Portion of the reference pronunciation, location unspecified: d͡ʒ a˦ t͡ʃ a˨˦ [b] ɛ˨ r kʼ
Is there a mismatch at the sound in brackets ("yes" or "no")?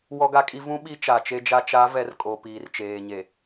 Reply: yes